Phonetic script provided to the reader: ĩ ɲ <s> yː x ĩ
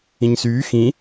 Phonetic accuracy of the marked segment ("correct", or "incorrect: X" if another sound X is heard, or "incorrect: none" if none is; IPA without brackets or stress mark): correct